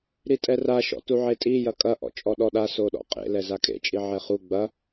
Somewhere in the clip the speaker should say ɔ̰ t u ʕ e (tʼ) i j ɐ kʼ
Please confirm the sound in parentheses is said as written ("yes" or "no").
yes